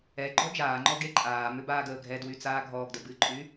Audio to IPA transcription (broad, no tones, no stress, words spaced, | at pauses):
ɛ ɡ͡ǃɔd͡ʒaːŋ͡ǃɔ ɡeǃʼaːmʏ baːɡəːɡʱɛdwy t͡saːɡʱɔːɡdə bɨǃʼy